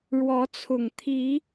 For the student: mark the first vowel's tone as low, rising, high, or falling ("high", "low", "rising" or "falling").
rising